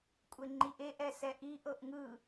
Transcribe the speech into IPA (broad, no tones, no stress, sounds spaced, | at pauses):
kʷʼ e ŋ͡ǃ i ʔ e ʔ ɛ s ɛ ʔ i ʔ ɤ ʔ ŋ ɯ